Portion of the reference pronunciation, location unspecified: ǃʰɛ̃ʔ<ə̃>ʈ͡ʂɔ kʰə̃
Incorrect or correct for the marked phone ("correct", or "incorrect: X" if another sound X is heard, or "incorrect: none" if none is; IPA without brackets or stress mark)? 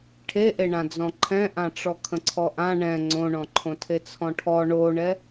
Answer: incorrect: ã